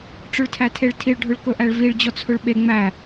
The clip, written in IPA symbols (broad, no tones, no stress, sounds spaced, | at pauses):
ʈ͡ʂ ɵ ɭ tʰ æ tʰ e ɭ tʰ i ɭ ɖʱ ɵ ɭ k ɵ ʔ æ ɭ v i ɭ d͡ʑ ɔ t͡sʰ ɵ ɭ ɓ e ŋ͡m æ